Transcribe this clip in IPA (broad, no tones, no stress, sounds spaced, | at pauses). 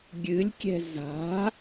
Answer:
ɡʲ ɨ lʲ kʲ ɛ̤ z a̤